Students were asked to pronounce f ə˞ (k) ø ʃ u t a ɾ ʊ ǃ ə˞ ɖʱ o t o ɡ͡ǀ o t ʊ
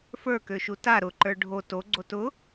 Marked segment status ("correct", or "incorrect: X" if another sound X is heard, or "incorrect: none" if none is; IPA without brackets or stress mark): correct